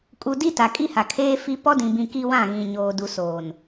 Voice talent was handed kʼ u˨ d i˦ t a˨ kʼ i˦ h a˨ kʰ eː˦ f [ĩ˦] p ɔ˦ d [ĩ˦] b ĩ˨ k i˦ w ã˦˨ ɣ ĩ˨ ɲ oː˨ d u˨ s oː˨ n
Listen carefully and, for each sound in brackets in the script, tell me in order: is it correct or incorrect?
incorrect, incorrect

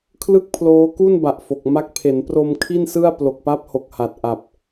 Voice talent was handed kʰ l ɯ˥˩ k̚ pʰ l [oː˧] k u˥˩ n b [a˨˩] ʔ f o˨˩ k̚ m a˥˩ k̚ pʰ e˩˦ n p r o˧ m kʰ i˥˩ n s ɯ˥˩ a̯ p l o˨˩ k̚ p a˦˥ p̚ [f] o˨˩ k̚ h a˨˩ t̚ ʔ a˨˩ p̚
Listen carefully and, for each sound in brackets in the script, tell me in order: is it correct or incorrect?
incorrect, correct, incorrect

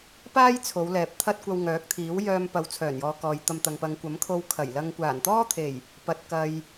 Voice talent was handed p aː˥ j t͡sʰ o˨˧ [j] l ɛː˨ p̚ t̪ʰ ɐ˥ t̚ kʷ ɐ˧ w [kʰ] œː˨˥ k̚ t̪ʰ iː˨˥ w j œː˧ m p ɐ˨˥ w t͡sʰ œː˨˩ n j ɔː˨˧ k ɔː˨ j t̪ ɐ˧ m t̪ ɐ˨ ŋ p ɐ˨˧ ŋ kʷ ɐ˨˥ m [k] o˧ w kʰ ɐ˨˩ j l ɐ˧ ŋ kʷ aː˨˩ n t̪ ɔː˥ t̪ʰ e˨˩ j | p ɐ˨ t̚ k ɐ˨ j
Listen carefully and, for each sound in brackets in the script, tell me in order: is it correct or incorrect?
incorrect, incorrect, incorrect

